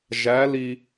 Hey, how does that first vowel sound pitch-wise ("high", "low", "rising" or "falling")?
rising